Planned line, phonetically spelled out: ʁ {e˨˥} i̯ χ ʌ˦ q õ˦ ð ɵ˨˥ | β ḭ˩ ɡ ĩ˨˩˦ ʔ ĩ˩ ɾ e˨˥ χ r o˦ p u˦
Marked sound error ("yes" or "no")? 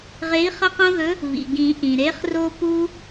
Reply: no